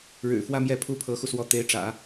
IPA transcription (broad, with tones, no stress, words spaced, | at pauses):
ɻɻ̩˨˩fwä˥˧ mjɛ˥˩ pʰu˥pʰɤ˧˥xu˧swɔ˧˥ t̪e˧˥ɪ̯ʈ͡ʂä̰˨˩˦